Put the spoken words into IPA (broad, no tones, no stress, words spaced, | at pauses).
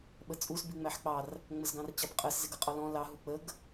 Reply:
ɓət͡sʼus biŋ͡mæħk͡pɑr | ŋ͡məzɡɑ̃rt͡ɕɑpqʼəs zɪɡʌqʼɔlɔ̃ lɑ ɦuk͡pəɡ